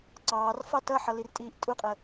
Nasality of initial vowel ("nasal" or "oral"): oral